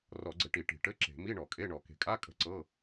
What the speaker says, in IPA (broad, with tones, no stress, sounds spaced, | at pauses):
r ɔ˧˩˧ ɡ͡ǀ ɘ˧˩˧ ʈ i˧˩˧ ʈ i̤˧˩˧ ʈ ɘ˧˥˧ ǁ e̤˧˩˧ m i˧˥˧ ɳ ɔ˧˩˧ kʼ e˧˥˧ ɳ ɔ˧˩˧ k e̤˧˩˧ kʼ a˧˥˧ kʼ ə̤˧˥˧ ǀ ɤ˧˥˧